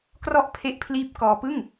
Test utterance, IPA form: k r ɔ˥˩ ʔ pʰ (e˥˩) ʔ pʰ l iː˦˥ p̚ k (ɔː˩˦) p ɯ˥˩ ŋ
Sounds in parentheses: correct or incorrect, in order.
incorrect: e˦˥, incorrect: ɔː˧

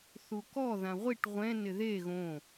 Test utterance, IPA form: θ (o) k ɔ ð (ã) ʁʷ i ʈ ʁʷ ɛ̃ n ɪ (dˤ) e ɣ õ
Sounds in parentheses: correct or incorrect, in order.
incorrect: u, correct, incorrect: ð

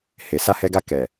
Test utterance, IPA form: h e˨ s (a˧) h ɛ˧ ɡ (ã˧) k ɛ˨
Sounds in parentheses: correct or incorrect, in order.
correct, incorrect: a˧

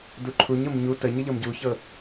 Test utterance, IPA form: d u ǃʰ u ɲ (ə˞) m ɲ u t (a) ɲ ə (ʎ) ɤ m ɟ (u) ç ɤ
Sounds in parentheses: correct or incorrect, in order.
incorrect: ɤ, incorrect: ə, correct, correct

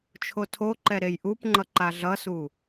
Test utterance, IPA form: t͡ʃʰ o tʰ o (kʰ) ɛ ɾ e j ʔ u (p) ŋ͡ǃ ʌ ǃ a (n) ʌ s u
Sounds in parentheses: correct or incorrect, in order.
incorrect: ǃ, correct, incorrect: ɮ

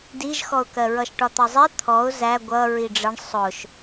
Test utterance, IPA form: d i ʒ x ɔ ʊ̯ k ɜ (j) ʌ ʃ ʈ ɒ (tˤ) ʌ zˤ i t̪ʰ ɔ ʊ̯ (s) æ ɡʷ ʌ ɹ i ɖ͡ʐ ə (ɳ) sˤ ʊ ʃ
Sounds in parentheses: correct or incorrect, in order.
incorrect: ɹ, incorrect: t̪, incorrect: z, correct

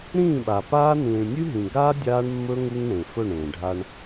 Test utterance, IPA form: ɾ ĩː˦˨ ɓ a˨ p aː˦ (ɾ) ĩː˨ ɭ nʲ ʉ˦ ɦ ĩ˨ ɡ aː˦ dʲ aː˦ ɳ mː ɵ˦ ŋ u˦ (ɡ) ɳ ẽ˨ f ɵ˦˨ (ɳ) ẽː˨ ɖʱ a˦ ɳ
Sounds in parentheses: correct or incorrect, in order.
incorrect: n, incorrect: ŋ, correct

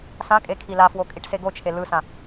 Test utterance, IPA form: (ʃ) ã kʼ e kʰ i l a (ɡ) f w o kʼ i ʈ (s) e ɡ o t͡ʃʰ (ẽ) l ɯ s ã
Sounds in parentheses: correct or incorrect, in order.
incorrect: s, incorrect: none, correct, incorrect: e

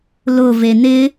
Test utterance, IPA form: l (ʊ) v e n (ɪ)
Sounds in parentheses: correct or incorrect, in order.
correct, correct

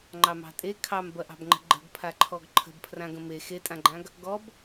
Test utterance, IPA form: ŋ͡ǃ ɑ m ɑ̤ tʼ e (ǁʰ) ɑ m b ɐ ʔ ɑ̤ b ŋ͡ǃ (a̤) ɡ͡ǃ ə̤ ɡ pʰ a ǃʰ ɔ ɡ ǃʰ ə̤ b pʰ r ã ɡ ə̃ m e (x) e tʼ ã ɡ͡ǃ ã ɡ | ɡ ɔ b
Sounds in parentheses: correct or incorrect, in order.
incorrect: kʰ, incorrect: ə̤, correct

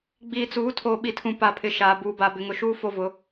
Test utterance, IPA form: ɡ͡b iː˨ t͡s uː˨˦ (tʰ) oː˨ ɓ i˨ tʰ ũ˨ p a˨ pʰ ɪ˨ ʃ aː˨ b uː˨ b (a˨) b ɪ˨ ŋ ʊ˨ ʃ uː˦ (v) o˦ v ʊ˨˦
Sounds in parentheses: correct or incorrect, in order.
correct, correct, incorrect: f

